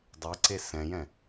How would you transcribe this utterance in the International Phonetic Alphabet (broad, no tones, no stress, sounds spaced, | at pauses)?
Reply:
dˤ e ǀ e s ɛ̃ j ɛ̃